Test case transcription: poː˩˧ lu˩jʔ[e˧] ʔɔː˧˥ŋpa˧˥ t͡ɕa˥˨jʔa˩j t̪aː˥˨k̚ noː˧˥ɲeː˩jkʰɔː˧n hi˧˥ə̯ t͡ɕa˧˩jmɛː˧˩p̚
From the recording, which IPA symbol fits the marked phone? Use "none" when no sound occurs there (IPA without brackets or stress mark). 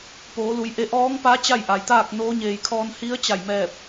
e˧